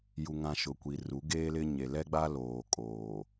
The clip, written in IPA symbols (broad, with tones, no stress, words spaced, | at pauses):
ju˨ ŋã˨ ʃʊ˨kʷi˨ru˨˦ ɡeː˦lɪ˦ ɲe˨lɛ˦ɡ͡ba˦ loː˨kʼoː˨